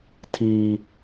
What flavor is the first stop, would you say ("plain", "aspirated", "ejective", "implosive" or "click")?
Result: aspirated